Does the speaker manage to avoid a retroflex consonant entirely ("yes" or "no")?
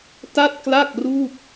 yes